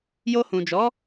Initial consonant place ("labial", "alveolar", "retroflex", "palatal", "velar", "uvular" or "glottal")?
palatal